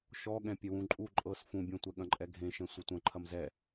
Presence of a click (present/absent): present